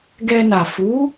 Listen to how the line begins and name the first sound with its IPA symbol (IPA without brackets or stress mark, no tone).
ɡ